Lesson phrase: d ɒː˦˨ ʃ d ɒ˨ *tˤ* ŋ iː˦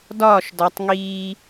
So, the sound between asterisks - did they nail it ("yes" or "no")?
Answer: yes